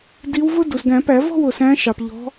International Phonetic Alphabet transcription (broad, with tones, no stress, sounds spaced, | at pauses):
d i˨˦ w v ʊ˦ d u˩ s ɡ æ̃˨˩˦ p æ˨˩˦ v ɔ̤˥˨ w ʊ˩ s æ̃˨˦ ʃ ɑ˩ p ʎ ɔ̤˨˦